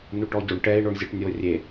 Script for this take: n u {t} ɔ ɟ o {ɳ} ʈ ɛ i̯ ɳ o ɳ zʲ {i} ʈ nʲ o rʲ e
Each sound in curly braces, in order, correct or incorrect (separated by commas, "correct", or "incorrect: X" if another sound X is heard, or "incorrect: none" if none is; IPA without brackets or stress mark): incorrect: ʈ, correct, incorrect: e